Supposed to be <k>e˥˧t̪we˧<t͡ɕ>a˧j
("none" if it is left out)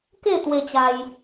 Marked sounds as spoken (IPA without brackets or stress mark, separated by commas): k, t͡ɕ